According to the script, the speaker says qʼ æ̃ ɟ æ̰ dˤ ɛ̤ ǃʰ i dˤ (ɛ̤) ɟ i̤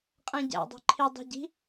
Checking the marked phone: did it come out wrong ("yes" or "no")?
no